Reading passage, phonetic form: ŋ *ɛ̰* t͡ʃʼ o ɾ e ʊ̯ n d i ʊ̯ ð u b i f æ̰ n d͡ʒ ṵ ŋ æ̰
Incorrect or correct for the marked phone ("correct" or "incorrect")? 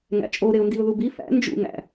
incorrect